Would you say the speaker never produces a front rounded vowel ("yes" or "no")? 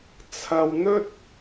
yes